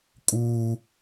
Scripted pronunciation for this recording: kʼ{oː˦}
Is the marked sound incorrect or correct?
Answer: incorrect: uː˦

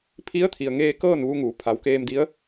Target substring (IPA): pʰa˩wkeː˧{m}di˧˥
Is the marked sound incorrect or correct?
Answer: correct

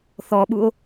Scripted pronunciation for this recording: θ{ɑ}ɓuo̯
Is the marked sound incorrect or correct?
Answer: incorrect: ɔ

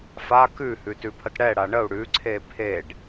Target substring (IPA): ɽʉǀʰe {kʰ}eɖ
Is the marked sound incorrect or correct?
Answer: incorrect: pʰ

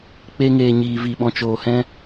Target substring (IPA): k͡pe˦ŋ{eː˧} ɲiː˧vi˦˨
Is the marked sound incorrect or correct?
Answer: correct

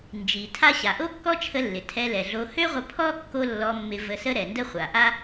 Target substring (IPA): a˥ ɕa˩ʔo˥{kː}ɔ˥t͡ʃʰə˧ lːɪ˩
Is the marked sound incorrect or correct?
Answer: correct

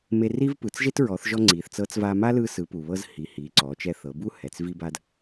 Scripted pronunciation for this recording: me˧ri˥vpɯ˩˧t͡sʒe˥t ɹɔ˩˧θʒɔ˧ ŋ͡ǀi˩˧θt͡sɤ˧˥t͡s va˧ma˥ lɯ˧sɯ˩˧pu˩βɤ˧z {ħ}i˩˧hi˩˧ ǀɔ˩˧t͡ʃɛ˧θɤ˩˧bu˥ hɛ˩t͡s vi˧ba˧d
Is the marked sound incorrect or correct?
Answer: incorrect: h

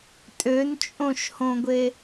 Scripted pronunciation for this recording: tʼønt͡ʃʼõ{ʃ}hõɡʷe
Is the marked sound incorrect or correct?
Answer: correct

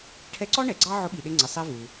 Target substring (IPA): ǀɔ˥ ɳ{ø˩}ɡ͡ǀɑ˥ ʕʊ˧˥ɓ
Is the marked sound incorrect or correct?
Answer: incorrect: ɛ˩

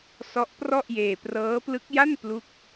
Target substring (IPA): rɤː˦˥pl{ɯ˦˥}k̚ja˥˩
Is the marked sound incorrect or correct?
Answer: correct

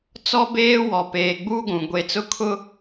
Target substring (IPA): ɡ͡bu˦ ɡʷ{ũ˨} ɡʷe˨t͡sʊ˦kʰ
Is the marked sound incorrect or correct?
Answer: correct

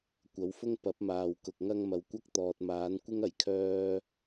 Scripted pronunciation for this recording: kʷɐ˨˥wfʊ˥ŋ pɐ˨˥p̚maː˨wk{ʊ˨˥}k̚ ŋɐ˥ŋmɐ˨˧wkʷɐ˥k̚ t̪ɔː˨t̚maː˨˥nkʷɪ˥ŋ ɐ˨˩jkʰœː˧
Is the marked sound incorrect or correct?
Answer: incorrect: ʊ˨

